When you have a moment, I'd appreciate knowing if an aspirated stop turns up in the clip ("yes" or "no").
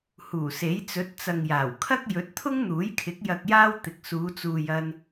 yes